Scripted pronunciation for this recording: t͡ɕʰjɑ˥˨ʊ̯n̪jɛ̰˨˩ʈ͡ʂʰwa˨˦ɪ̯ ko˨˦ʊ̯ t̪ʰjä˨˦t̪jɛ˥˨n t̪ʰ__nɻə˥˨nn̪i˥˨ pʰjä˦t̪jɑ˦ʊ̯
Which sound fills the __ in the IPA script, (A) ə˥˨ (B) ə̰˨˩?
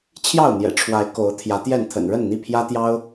B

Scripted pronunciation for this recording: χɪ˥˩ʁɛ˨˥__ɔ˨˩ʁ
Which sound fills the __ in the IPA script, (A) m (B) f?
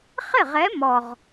A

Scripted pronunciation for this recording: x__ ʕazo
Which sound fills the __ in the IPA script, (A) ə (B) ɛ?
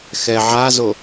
B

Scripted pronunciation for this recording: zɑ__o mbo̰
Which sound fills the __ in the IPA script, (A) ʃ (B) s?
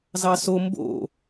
B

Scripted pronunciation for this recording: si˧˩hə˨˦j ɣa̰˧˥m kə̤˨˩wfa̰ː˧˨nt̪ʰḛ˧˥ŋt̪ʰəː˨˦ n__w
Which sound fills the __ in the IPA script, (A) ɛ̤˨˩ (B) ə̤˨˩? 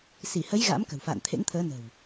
B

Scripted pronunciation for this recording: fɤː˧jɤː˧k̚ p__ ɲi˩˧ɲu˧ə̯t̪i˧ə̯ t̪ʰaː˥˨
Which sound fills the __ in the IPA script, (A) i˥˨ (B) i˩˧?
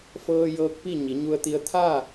A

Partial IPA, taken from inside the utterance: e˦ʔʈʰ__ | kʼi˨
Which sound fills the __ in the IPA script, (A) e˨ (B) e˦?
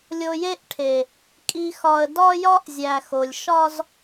A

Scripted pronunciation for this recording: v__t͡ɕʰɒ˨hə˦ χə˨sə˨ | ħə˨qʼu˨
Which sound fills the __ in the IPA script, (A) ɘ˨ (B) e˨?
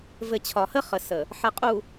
A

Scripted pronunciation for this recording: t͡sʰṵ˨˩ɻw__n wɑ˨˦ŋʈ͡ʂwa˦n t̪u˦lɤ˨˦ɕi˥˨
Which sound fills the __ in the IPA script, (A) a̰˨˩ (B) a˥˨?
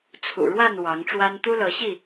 B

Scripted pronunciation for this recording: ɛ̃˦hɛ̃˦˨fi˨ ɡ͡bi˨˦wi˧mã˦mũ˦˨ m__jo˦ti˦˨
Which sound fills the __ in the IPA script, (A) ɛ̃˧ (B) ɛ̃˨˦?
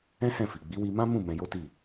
A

